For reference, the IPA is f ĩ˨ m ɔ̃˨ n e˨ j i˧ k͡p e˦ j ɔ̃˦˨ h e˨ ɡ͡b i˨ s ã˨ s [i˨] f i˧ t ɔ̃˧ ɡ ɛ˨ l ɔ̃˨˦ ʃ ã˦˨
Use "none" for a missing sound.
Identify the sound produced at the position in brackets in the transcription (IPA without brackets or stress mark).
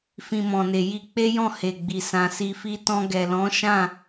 i˨